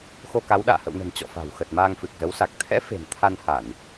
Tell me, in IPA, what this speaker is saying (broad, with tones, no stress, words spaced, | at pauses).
xo˧ka˨˦wɗa̰ː˧˨ hə̰˧˨wnə̤˨˩n t͡ɕɔ̰˧˨fa̤˨˩wxə˨˩t̚ maː˧ŋfɨ˨˩k̚zə˨˦wsa˨˩k̚ t̪ʰɛ̰˧˥ fe̤˨˩n t̪ʰa˧nha˧˩˨n